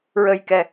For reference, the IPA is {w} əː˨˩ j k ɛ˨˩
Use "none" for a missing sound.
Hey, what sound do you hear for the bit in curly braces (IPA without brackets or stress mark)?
ɹ